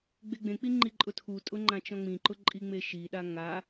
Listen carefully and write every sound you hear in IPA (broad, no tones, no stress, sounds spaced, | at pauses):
ɡ͡b e ɡ͡b ẽ k͡p i ŋ͡ǃ i ǃʼ ʊ tʰ u tʼ ʊ ŋ͡ǃ ã t͡ʃ ɔ̃ ŋ͡m ĩ ǃ ʊ ǃʼ i ŋ͡m e ʃ i ɗ a ŋ a